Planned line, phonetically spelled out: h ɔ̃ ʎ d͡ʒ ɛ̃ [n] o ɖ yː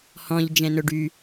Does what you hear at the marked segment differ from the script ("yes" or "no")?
no